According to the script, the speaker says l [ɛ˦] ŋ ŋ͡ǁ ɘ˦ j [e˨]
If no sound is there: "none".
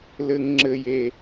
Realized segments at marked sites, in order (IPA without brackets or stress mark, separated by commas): ɘ˦, e˦